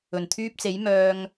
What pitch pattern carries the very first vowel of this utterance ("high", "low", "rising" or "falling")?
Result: low